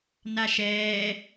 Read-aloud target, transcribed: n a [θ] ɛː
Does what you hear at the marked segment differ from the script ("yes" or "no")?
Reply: yes